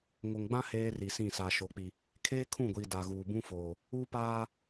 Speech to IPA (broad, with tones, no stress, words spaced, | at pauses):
ŋo˨ŋɡ͡bã˦ heː˦ri˨sĩ˦˨ sa˨ʃo˨k͡pi˨ | kʰeː˦kʰũ˦˨ɡʷiː˨ da˨ɣuː˨bũ˦ foː˨ | uː˦paː˦